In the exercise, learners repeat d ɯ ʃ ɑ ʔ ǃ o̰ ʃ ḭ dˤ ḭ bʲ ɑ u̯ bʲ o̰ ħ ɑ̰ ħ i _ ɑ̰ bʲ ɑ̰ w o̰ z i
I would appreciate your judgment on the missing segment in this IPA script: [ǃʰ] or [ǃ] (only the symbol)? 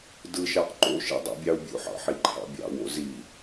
ǃʰ